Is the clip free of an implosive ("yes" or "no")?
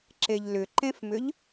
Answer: yes